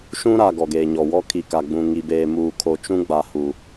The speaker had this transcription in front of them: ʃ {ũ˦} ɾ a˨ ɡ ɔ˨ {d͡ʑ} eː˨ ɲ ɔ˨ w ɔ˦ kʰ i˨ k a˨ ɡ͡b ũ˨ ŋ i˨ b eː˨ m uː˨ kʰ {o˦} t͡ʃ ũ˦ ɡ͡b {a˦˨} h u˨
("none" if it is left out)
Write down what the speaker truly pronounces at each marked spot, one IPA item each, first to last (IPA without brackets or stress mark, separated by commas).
ũ˦, ɡ, o˨, a˨